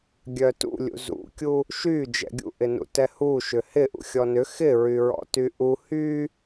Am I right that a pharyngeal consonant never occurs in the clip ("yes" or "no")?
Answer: yes